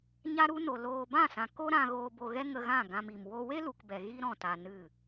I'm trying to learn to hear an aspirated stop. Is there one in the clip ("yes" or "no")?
no